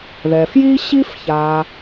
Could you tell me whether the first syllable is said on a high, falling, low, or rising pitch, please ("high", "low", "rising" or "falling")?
low